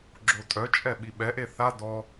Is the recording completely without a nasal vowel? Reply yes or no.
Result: yes